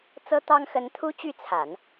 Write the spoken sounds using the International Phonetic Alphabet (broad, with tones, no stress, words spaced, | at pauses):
t͡sɤ˥t̪ɑ˥ŋxə˧˥n t̪ʰu˥t͡ɕy˥˩ t͡sʰa˨˩˦n